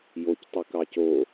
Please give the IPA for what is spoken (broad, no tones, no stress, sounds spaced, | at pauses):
j o c tˤ i k ɑ c o